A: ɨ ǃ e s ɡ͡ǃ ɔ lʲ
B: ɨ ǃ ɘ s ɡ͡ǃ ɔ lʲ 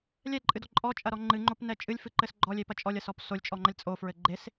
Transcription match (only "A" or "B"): B